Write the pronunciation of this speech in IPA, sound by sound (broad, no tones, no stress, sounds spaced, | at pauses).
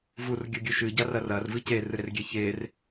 v u r ɡʲ ɘ ɡʲ ɨ ʃ ɨ ɟ a r ɐ r ɐ r v ɨ c e r ɨ ɾ e r ɡʲ e ç e r